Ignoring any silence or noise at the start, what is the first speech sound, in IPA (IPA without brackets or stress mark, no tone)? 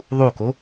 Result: ðˤ